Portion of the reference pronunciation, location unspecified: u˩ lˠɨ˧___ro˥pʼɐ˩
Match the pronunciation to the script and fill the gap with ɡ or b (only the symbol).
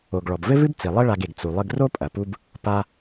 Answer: ɡ